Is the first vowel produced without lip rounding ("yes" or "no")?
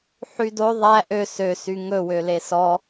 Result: no